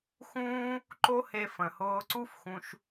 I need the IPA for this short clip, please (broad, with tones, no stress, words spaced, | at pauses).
xũː˦ | ǃo˦he˧ fə̃˨hʊː˧ ǀu˦fxũ˧ʃ